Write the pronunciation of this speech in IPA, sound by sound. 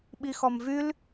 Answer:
ɓixɔmvyl

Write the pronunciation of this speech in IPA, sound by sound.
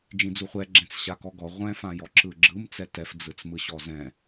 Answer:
d͡ʒĩd͡zuχʷɛ ɡ͡ǁɛ̃t͡sɕakɔɡɔ ʁʷɛ̃ fãjɔǁɯɡ͡ǁɯm t͡sɛtɛf d͡zɯt͡smɯɕɔzɛ̃

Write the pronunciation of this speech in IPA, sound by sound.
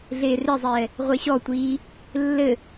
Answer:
ɮeːrezˤɛː | ʁʷeɕɔtʷiː | lːɘ

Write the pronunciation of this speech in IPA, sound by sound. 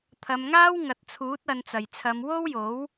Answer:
t̪ʰɐ˨˧mŋaː˥wŋɐ˨t̚t͡sʰuː˨˥t̚ ɐ˨˧nt͡sɐ˨˩jt͡sʰɐ˨˧m wo˥wjo˨˥w

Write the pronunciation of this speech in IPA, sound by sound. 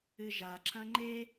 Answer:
ɨʒa ǁɐ̃ŋ͡ǃe

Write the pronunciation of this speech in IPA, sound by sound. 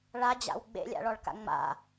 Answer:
ɭad͡ʑa̰w ɡ͡bḛlʲa̰ɭɔɭka̰ ŋ͡ma̰

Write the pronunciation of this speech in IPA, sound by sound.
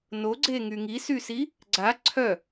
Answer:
noɡ͡ǀeŋy ŋisysi | ɡ͡ǀa ǀʰœ

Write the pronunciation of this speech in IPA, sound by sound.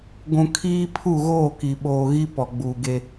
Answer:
ɡʷũ˨ kʰiː˦pʰu˦˨ ɣoː˦˨ki˨ɓoː˨ɣi˦ pɔ˨ɡ͡buː˨ɡe˦

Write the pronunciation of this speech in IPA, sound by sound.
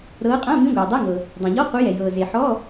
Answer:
ɾɤː˨˦qʼã˧˥˧ mĩ˧˥˧ɡʷɤː˩dˤe˧˥˧ŋɤ˩ | dˤã˩ʎɔ˧˥˧qu˨˦jɛ˩ jɤː˩ze˩ ħɔ˧˥˧

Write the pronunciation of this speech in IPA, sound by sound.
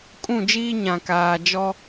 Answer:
kʼũ˦˨d͡ʒiː˦ ɲã˨kaː˨ d͡ʒɔ˦

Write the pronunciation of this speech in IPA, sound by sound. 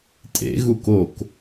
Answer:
tʼḛ ɣukok

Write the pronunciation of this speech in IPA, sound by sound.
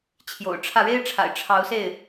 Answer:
t͡ɕʰjo̰˨˩ʊ̯ʈ͡ʂʰä˥˩ ɻe˥ɪ̯ʈ͡ʂʰa̰˨˩ɪ̯ ʈ͡ʂʰɑ˧˥ʊ̯se˥˩ɪ̯

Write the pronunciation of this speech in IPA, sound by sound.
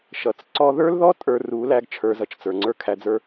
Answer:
ʃʌ˨t͡s ǀɔ˧ðə˞˦lðɔ˦ tʼə˞˧ru˨˦ læ˦ɡt͡ʃʰə˞˧zʌ˧t͡ʃ t͡sə˞˨ŋ͡ǀə˞˦kʰæ˧d͡zə˞˦

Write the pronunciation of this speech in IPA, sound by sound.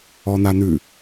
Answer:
ɔnanʉ

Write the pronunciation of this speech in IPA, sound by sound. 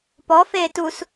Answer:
pɔfeː tus

